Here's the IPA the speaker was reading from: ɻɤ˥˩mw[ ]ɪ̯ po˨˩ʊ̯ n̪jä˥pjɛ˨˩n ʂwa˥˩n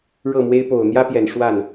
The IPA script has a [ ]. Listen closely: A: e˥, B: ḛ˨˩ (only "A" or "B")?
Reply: A